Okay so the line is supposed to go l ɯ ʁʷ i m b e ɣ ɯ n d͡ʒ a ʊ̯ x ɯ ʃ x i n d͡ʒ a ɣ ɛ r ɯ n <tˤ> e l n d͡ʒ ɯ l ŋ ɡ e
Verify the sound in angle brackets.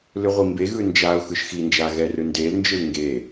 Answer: incorrect: d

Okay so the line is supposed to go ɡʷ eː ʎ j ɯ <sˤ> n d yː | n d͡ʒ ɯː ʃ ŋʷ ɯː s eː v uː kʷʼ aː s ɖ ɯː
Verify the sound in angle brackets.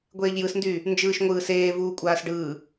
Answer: incorrect: s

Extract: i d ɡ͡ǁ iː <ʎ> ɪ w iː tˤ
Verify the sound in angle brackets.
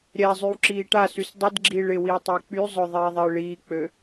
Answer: incorrect: ɭ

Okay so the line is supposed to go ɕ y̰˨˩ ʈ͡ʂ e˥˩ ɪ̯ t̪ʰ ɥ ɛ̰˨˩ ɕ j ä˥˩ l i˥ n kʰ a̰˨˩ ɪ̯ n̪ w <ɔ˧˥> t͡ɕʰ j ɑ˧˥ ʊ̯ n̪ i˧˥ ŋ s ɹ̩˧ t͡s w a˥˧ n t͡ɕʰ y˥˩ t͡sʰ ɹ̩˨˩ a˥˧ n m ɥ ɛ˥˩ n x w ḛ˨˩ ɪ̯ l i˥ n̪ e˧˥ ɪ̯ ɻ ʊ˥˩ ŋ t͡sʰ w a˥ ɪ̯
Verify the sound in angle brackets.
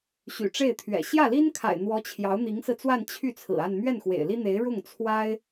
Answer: correct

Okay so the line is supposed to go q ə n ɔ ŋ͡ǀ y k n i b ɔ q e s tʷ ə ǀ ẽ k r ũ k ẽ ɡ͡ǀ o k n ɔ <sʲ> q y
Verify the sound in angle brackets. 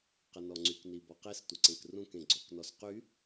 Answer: incorrect: s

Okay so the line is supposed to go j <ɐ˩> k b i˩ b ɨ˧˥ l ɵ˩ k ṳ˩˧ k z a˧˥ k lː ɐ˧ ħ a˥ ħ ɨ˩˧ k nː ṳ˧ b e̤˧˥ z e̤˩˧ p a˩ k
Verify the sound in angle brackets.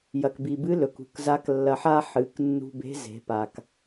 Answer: correct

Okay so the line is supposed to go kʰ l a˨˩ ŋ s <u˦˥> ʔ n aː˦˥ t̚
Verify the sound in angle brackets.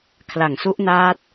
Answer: correct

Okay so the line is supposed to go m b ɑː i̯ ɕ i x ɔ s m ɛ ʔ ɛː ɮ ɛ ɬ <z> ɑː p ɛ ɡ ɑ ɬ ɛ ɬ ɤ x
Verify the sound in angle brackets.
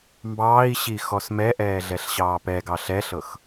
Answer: incorrect: ɕ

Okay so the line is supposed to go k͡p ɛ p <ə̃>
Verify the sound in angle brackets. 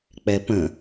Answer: correct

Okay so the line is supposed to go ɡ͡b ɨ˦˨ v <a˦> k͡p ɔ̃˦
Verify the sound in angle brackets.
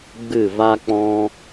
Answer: correct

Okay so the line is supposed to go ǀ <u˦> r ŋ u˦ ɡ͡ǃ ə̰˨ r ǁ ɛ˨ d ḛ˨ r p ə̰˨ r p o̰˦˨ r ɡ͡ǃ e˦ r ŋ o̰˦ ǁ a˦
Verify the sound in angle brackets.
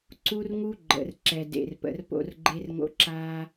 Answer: correct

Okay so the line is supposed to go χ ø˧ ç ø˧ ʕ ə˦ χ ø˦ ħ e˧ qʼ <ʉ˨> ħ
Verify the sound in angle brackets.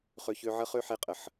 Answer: incorrect: ə˨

